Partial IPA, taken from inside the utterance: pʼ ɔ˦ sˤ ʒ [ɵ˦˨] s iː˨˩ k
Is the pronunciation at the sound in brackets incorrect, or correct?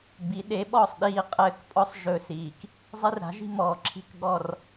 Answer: correct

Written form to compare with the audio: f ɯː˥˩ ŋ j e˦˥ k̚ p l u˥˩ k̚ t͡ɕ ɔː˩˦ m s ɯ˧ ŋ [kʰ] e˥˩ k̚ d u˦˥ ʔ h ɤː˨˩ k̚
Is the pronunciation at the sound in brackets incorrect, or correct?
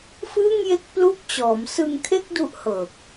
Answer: correct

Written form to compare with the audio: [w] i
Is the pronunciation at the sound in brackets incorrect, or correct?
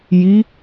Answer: incorrect: j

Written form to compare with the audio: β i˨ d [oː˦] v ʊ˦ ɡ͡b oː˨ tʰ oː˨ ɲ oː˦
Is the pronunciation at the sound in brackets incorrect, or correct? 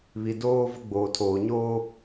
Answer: correct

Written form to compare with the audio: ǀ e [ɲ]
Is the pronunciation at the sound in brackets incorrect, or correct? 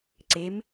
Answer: incorrect: m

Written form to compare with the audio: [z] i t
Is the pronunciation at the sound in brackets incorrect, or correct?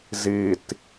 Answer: correct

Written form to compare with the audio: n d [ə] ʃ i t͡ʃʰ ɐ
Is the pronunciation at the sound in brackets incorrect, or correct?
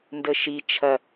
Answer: correct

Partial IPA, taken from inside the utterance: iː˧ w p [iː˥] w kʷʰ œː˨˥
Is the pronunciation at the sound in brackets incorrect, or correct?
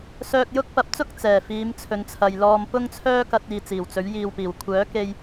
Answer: incorrect: iː˨˩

